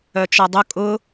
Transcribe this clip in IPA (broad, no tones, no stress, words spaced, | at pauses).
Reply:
œt͡ʃɔdˤʊ kʼʊ